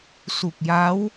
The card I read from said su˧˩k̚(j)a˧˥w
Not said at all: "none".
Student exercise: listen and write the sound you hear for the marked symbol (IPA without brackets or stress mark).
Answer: j